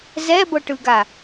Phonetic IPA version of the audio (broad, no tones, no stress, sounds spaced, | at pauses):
z ɛ b ɤ ʈ ɯ ɡ a